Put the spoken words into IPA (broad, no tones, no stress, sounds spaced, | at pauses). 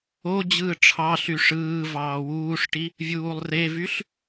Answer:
o d͡ʑ ɯː ʈ͡ʂʰ ɑ ɬ y ʂ ɯː v ɑː w uː ʂ ʈ i | vʲ uː lˠ r e v y ɬ